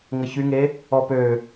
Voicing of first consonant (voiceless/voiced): voiced